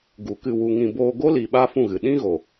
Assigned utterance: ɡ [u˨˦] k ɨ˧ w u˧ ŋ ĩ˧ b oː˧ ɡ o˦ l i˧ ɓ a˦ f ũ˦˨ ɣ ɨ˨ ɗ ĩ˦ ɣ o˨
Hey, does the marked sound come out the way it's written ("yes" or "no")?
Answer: yes